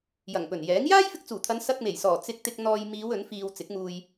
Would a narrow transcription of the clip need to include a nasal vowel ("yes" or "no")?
no